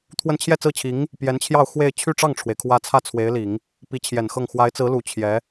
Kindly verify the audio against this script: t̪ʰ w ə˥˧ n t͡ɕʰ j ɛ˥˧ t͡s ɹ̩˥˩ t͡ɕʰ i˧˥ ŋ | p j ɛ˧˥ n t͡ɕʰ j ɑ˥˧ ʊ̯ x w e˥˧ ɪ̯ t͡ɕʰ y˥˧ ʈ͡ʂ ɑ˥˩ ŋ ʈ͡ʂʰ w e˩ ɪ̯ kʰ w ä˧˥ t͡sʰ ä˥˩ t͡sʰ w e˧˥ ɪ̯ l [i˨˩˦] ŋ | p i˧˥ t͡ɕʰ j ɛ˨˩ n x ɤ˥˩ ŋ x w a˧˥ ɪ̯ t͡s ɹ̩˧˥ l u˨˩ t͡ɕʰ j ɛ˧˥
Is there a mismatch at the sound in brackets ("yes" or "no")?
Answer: no